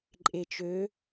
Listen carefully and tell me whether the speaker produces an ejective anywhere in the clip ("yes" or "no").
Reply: yes